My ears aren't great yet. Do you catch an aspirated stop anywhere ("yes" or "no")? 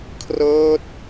yes